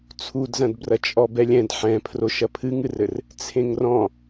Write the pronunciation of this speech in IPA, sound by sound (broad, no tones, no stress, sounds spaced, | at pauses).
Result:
t͡sʰ u d z ɐ̃ d b r ɐ t͡ʃʼ ɔ b ɛ lʲ ɛ̃ d ħ ɛ̃ pʰ r o ʃ ɐ pʰ ɨ ŋ ɨ r ɘ r | t͡sʰ ẽ ŋ r ɔ̃